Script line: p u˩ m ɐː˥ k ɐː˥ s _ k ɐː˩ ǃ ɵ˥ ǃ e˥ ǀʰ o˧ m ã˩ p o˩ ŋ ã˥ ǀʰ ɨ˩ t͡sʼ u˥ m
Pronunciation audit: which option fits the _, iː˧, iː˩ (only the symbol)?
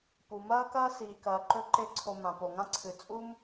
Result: iː˩